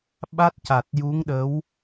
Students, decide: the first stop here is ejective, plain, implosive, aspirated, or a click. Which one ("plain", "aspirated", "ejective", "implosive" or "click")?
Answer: implosive